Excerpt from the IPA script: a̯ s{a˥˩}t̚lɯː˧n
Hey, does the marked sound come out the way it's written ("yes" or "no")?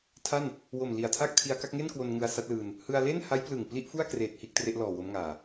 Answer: no